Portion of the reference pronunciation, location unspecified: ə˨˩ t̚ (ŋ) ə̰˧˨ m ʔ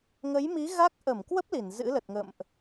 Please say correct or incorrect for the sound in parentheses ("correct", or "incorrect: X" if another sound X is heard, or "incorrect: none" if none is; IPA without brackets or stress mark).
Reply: correct